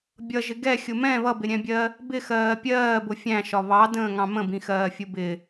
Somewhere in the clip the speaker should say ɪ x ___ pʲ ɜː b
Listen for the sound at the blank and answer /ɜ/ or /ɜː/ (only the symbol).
ɜː